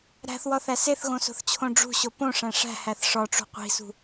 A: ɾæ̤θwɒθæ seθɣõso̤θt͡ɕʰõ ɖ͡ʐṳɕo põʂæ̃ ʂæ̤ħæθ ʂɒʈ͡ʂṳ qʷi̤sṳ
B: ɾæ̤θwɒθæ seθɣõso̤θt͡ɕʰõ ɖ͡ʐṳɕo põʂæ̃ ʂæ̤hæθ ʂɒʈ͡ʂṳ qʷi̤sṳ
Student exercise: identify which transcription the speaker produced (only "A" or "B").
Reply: B